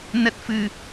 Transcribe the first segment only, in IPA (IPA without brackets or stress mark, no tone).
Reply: n